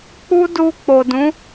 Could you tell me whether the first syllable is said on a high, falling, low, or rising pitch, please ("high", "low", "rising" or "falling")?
high